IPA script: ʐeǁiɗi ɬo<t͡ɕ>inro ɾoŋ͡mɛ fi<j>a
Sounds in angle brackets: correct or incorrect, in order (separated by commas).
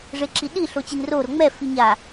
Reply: correct, incorrect